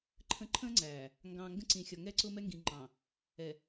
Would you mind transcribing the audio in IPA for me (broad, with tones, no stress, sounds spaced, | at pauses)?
ǃʰ ə̃˨ ǃʰ ə̃ː˦ ŋ͡ǀ æː˨ | ŋ ɡ ɑ̃ː˨ ŋ ɡ ə̃˦ ǀ ĩ˨ xʲ ɒ˨ ŋ ɛ˦ ǀ ʊ˦ m ɛ˦ ŋ ɡ ĩ˨ ŋ͡ǃ ɑ̃˨ | ɛ˨